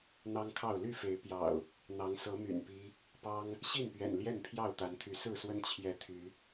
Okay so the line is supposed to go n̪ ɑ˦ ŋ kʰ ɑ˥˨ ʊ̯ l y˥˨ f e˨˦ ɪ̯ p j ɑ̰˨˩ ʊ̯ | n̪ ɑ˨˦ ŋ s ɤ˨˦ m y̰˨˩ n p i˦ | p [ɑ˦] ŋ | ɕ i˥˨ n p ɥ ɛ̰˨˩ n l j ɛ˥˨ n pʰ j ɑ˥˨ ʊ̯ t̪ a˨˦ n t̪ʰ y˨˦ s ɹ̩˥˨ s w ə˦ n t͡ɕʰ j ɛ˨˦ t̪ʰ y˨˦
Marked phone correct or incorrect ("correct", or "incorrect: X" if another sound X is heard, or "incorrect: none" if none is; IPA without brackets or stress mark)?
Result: correct